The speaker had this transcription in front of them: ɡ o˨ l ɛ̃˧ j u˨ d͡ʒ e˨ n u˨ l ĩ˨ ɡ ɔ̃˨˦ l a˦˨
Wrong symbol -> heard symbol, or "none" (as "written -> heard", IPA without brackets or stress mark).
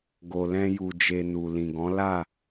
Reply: none